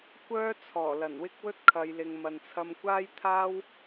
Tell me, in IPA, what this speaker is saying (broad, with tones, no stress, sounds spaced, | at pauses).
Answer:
kʷ œː˥ t͡sʰ ɔː˨˩ l ɐ˨˩ n w ɪ˥ k̚ w ɵ˥ t̚ kʰ ɐ˨ j l ɪ˨ ŋ m ɐ˨ n t͡sʰ ɐ˧ m kʷ aː˥ j t̪ʰ aː˥ w